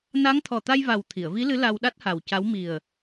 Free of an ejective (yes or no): yes